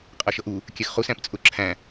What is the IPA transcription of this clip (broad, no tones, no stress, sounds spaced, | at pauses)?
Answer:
qʼ ʌ ʃ ʌ ʔ u | kʲ ɛ x χ u s æ̃ p t͡sʼ ʊ ǁʰ æ̃